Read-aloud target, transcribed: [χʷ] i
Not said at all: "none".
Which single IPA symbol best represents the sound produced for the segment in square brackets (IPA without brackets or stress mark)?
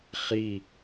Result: χ